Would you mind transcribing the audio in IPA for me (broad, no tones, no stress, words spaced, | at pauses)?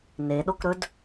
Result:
neɗokɾɵd